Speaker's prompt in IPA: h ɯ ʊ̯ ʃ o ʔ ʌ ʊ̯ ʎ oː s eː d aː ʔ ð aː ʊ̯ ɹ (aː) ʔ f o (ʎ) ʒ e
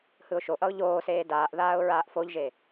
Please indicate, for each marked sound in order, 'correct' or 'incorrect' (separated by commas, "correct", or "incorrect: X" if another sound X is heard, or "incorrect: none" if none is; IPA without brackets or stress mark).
correct, correct